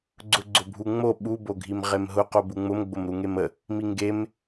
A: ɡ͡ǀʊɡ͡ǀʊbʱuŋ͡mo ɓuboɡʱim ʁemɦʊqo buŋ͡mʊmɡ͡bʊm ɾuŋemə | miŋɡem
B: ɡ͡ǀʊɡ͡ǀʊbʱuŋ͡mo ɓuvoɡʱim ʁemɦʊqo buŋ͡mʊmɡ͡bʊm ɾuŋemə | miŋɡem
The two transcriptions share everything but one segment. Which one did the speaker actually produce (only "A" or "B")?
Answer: A